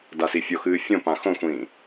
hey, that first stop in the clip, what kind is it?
plain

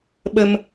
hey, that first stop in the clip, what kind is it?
implosive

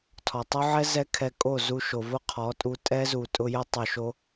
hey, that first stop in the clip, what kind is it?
aspirated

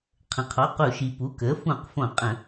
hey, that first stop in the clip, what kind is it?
aspirated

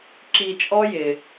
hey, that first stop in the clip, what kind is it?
click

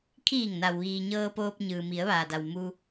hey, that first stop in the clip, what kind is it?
aspirated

